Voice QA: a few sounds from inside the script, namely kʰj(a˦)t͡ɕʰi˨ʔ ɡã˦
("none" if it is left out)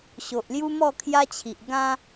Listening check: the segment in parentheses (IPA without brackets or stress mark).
a˦